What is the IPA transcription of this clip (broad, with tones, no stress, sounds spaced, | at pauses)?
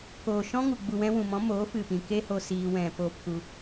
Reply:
k oː˨ ʃ ɔ̃˧ ŋ u˨ ɡ͡b u˨ w ɛ̃˧ w ũ˨ m ɔ̃˨˦ m oː˨˦ f ɨ˨ p ĩ˨ k e˦ h o˧ s iː˧ w ɛ̃˨ p oː˧ p k u˧